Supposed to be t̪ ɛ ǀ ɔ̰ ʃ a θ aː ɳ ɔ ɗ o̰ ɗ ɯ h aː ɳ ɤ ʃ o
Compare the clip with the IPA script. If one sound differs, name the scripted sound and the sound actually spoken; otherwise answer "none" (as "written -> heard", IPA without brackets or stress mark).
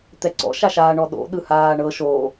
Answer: θ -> ʃ